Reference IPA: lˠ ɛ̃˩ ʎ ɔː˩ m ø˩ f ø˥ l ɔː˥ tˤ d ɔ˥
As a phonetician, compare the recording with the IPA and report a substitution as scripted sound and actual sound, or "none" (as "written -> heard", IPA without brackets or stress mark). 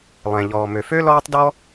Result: none